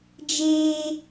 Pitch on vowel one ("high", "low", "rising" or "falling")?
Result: high